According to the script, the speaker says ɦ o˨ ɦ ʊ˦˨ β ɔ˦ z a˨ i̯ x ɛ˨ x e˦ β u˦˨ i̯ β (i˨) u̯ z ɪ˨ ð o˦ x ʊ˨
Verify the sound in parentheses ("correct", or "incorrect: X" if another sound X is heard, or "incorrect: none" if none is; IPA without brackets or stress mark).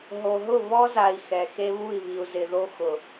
correct